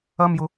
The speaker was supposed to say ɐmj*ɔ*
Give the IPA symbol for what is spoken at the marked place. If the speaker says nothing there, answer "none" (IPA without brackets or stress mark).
ʊ